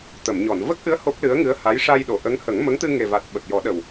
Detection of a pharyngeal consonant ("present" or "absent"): absent